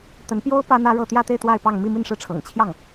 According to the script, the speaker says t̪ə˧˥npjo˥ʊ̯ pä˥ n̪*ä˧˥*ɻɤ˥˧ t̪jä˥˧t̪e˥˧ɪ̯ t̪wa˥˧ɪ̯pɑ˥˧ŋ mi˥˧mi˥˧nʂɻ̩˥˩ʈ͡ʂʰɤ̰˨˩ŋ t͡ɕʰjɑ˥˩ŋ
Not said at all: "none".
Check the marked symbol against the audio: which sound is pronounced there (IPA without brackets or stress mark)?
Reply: ä˥